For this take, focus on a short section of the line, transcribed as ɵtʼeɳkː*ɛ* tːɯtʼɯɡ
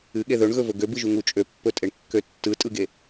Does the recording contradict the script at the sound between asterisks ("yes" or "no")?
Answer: yes